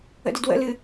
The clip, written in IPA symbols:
ə̰dədwə̰lɨ

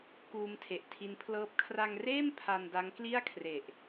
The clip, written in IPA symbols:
kuː˧mtʰe˨˩ʔtʰi˦˥npʰlɤː˥˩p̚ kʰra˧ŋreː˥˩m pʰa˧nda˦˥ŋ kli˥˩a̯kʰre˨˩ʔ

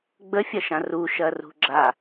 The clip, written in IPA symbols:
ɡ͡bəfʲɐʃã ruʃɐrṳ ɡ͡ǁa

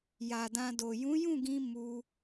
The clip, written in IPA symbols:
ja˨dã˧do˨ jũ˨˦jũ˦˨ɡĩ˧ mu˧

